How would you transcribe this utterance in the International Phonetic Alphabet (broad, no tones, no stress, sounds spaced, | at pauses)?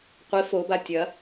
qʷ i f o b a tʲ ɐ